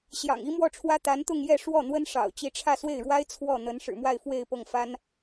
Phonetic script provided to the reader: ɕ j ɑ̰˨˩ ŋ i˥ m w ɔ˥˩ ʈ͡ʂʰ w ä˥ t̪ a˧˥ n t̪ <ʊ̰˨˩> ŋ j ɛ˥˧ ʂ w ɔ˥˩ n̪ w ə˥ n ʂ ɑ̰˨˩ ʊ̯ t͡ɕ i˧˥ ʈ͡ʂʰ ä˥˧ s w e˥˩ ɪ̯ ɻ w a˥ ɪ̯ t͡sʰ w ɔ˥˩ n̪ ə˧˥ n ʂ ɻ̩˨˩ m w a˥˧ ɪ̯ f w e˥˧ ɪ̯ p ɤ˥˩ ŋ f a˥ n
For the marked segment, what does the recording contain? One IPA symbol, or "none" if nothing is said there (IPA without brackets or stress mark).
ʊ˥˧